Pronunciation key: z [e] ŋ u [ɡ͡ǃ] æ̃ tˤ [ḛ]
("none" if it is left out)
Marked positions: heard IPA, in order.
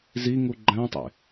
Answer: i, ɡ͡ǃ, ḛ

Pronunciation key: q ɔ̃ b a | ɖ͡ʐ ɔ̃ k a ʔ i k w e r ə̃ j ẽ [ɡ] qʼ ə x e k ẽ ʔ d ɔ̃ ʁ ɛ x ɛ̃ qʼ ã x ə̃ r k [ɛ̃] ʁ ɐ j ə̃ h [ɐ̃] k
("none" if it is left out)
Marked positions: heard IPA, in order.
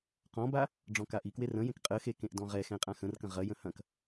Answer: k, ə̃, ɐ̃

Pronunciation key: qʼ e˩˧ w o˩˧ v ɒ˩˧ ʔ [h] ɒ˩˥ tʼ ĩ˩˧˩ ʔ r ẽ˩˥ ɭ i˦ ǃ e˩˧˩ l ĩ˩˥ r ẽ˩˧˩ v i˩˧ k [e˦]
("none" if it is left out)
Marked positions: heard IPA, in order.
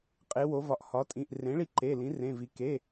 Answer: h, e˩˧˩

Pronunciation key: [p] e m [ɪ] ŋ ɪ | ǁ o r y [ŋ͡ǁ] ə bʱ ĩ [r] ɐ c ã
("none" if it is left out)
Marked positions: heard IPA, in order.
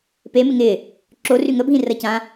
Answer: p, ɪ, ŋ, r

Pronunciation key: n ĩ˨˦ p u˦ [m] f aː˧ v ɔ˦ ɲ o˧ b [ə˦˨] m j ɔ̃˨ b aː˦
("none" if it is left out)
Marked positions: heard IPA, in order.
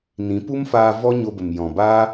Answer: m, ə˨

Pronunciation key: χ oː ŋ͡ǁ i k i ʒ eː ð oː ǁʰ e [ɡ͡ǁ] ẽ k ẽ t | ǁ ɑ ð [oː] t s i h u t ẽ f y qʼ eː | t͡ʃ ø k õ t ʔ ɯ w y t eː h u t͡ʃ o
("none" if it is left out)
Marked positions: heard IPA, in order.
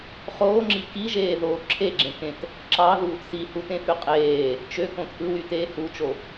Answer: ɡ͡ǁ, uː

